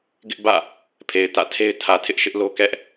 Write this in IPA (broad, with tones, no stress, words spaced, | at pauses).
ɡɪ˦ʔbä̰˦˨ | pʰe˨ɪ̯ tä̰˦˨tʰe˦ɪ̯ tʰä˨tʰɪ˦ʔʃɪ˦ʔlo˦ kɛ˦ʔ